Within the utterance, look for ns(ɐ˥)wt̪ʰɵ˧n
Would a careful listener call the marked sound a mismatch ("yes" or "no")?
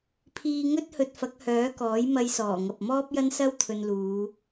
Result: no